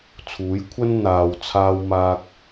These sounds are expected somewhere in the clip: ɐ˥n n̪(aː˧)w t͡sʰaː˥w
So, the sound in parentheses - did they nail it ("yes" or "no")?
yes